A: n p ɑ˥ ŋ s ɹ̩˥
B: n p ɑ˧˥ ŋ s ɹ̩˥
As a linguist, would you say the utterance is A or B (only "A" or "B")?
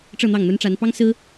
A